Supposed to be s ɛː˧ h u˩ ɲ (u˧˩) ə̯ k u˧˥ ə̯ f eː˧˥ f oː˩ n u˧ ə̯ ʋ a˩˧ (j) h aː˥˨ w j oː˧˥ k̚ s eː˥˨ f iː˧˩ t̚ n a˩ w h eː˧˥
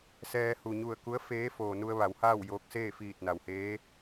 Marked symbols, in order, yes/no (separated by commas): yes, no